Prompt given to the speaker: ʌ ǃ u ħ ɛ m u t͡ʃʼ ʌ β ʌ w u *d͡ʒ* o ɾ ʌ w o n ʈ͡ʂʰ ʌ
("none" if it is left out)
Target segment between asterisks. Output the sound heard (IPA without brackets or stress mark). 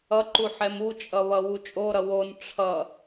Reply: t͡ʃʼ